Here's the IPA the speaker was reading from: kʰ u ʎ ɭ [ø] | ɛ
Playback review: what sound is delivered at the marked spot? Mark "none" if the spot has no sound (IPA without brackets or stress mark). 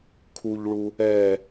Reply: u